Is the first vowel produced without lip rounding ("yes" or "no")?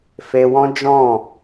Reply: yes